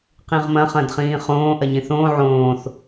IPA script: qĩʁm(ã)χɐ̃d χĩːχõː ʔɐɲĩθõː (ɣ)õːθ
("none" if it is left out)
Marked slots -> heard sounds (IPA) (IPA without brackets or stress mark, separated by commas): ɐ̃, ʕ